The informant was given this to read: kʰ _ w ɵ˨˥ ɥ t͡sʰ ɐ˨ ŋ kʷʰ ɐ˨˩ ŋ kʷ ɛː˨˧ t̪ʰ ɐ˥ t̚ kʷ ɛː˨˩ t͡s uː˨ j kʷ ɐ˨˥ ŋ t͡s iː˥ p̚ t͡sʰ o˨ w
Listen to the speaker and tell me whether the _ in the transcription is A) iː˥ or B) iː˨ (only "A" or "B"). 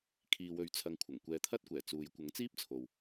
B